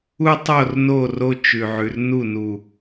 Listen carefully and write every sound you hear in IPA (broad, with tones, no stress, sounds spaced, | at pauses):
u˦ tˤ o˦˨ r n o˦˨ r o˦ t͡ʃ ʉ˨ ʕ ʉ˨ r n u˦˨ n u˨